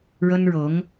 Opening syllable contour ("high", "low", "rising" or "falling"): high